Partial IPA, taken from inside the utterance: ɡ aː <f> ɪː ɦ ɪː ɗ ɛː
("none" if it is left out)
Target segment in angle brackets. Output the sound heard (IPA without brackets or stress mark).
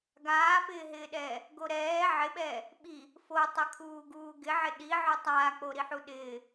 f